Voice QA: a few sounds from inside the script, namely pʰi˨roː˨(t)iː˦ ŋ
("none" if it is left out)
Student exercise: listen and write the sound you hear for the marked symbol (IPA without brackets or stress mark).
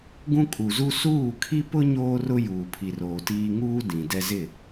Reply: t